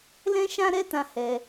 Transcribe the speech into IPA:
l ɛ̃˦ ʃ ã˦ ɾ ɛ˦ t ã˧ h ɛ˧

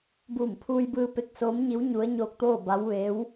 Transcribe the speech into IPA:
b uː˧˩ m pʰ uː˧ j b ɯː˧ p e˧˥ k̚ s oː˧˥ m ɲ i˧˥ w ɲ u˧˥ ə̯ ɲ oː˧ k̚ t̪ oː˥˨ b a˧˥ w ʋ e˧˥ w

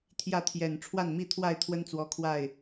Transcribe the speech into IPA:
t̪ʰ j ä˥˨ t̪ʰ j ɛ˨˩ n ʈ͡ʂʰ w a˥˨ n m i˥˨ t̪ʰ w a˥˨ ɪ̯ t̪ʰ w ə˦ n t͡s w ɔ˨˦ kʰ w a˥˨ ɪ̯

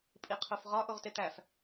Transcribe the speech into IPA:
pʼ i qʰ o f ʁ ɒ ʔ o ʁ t e t̪ æ f

